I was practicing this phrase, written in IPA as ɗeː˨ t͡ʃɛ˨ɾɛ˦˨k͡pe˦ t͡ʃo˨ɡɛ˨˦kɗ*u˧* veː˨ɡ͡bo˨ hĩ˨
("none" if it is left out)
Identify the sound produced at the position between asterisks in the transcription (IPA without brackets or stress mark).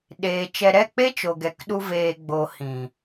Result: u˧